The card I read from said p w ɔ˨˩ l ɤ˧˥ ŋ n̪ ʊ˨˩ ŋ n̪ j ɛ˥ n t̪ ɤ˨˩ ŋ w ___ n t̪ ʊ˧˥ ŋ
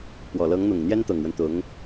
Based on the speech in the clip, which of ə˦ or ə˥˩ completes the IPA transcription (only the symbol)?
ə˦